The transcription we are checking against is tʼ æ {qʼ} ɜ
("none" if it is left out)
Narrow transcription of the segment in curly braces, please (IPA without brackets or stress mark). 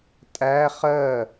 χ